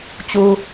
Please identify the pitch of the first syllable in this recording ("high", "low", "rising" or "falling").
high